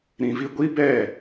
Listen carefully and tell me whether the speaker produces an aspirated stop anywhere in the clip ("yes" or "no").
no